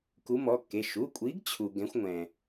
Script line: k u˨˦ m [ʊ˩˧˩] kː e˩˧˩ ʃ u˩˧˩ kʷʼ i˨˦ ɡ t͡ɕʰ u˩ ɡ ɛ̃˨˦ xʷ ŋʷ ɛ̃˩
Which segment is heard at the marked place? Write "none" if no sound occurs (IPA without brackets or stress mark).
ɔ˩˧˩